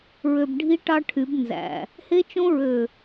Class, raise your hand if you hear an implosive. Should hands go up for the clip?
no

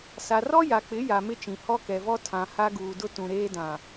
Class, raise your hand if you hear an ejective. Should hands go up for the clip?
no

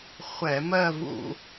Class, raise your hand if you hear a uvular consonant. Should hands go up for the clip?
yes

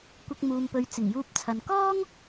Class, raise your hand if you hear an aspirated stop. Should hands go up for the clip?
yes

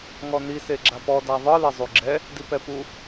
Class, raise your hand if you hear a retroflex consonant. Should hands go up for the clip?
no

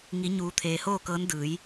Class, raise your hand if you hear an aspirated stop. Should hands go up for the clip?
yes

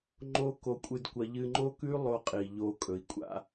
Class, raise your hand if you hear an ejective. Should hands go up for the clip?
yes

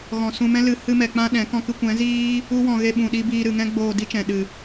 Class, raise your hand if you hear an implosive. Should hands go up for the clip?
yes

